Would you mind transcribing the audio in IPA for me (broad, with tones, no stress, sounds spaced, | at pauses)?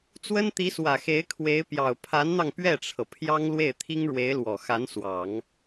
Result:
t͡s w ə˥ n t̪ i˧˥ s w ä˨˩ x e˧˥ ɪ̯ kʰ w e˧˥ ɪ̯ p j ɑ˨˩ ʊ̯ pʰ a˧˥ n n̪ ɑ˧ ŋ p ɥ ɛ˥˩ ʈ͡ʂʰ ɤ˩ pʰ j ɑ˥ ŋ l w e˥˩ ɪ̯ t̪ʰ i˥ ŋ ɻ w e˧˥ ɪ̯ l w ɔ˨˩ x a˧˥ n s w ɑ˨˩˦ ŋ